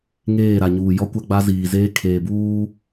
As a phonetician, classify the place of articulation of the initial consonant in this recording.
velar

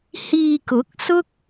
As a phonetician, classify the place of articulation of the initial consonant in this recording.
glottal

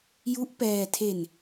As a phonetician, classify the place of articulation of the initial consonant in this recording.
palatal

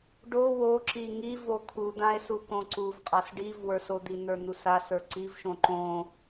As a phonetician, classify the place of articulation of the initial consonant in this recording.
retroflex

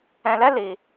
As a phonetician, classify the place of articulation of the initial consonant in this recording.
alveolar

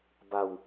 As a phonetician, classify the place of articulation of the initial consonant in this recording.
labial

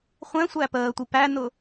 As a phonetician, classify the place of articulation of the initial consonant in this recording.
uvular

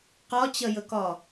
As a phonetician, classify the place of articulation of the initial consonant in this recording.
uvular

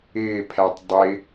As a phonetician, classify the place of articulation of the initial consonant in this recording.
labial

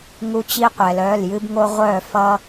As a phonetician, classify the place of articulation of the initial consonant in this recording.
velar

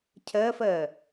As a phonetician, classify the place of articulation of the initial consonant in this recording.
palatal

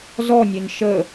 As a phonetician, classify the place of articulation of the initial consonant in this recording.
alveolar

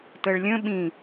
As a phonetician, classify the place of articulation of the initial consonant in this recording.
alveolar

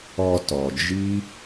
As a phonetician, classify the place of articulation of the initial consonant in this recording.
alveolar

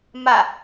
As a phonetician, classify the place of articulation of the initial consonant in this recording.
labial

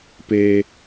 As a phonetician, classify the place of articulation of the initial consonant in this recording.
labial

